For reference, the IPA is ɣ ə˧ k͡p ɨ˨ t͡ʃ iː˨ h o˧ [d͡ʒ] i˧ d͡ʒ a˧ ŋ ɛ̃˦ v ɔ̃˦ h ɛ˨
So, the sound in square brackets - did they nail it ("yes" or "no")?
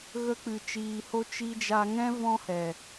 no